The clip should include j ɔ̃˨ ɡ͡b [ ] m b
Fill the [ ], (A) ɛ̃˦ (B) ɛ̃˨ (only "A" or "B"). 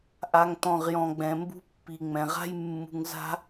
B